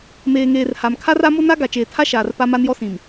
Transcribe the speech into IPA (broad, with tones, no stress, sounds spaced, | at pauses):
m eː˨ ŋ eː˨ r h a˨ m kʰ a˦ r a˨˦ m o˦ n a˦ ɡ a˨ t͡ʃ eː˨ tʰ a˦ ʃ aː˨ r p a˦ m a˦ n j ɔ˦ s ĩ˨ m